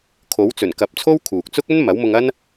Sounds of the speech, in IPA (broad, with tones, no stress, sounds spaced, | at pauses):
kʰ o˨˥ w t͡s ɵ˨˩ n k ɐ˨˥ p̚ t͡sʰ o˥ w kʰ uː˨ k̚ t͡s ʊ˥ k̚ ɵ˥ n m ɐ˨˥ w m ʊ˧ ŋ ɐ˥ n